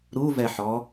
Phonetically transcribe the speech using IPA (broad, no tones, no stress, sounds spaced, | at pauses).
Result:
ɾ u v ɛ ħ ɔ